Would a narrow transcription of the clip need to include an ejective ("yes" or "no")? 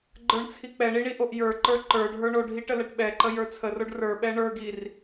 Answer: no